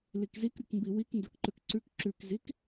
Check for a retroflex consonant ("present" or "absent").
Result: absent